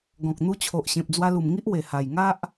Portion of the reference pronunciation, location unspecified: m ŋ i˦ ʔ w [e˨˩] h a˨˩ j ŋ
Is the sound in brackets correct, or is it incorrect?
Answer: correct